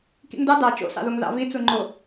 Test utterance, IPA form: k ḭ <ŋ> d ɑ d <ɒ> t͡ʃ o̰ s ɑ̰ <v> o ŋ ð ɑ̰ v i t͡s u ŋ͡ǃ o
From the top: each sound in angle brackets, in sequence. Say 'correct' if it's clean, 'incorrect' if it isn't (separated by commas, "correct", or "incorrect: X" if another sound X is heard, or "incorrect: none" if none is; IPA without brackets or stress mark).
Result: correct, incorrect: ɑ, incorrect: ð